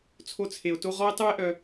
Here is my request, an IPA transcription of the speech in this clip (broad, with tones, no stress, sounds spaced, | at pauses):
t͡sʰ o˦ t͡sʰ e˧ o̯ t o˦ ʁ ɔ˦ e̯ tˤ u˦ e̯ ʔ œ˧